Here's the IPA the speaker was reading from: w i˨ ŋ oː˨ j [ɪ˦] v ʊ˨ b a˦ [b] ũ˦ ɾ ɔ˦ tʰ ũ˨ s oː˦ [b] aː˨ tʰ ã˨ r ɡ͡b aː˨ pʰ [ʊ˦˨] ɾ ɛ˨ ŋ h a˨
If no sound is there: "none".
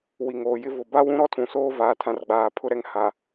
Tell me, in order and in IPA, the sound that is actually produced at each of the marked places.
ɪ˦, w, v, ʊ˦

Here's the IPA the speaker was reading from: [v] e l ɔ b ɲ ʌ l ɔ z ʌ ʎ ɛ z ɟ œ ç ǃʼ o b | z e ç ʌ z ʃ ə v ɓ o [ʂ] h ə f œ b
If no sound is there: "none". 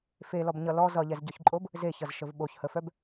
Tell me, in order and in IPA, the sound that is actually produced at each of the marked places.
f, ç

